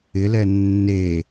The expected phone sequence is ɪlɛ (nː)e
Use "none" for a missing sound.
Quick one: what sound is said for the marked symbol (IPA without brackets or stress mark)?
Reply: nː